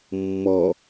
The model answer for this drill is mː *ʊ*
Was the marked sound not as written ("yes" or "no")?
yes